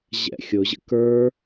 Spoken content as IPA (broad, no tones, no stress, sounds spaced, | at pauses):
ʑ ɛ̰ xʲ ʊ ʑ ə̰ k ə˞